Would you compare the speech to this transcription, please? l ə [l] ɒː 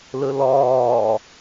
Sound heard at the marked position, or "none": l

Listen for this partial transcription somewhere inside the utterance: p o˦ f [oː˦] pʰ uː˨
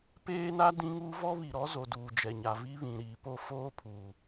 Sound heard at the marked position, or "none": oː˦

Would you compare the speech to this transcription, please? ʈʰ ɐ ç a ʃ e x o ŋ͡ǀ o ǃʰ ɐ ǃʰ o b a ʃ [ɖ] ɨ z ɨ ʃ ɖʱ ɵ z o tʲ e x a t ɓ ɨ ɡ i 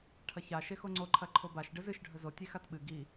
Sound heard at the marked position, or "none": ɖ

